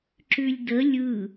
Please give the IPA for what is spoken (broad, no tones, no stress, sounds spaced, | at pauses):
ǁ ʉ lʲ d ə lʲ ɯ